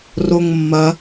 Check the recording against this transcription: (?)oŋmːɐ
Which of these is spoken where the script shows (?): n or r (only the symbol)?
r